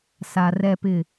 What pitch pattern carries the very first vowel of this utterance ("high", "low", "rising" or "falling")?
low